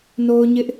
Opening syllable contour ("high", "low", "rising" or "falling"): high